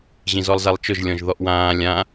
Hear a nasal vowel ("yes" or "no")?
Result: yes